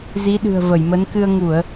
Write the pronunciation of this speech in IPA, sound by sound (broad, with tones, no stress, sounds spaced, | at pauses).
z i˨˦ ɗ ɨ̤˨˩ ə̯ v ə˧˩ j m ə˨˦ n k ɨ˧ ə̯ ŋ u˧˩˨ ə̯